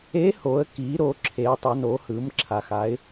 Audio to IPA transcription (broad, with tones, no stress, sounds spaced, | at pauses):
e˧˥ h o˩˧ ə̯ k i˩˧ ɾ o˩˧ ǁʰ e˩˧ ʊ̯ tˤ ʌ˩˧ n o˩˧ h ɯ˩˧ m ǁʰ a˩ x a˩˧ ɪ̯